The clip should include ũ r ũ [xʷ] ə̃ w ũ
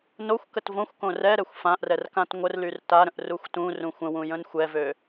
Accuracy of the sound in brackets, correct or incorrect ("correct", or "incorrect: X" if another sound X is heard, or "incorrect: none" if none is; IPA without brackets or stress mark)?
correct